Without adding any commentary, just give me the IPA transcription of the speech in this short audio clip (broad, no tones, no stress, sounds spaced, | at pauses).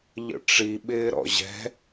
ʎ ə̰ ʈ͡ʂ i ɓ ɪː ɾ ɔ̰ ʑ ɛ̤